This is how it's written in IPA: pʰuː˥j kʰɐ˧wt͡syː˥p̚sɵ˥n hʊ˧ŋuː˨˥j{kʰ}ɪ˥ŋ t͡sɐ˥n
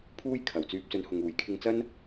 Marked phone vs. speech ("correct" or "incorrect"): correct